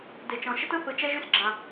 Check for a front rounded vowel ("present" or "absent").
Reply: present